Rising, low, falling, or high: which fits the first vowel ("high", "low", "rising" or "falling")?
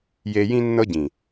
low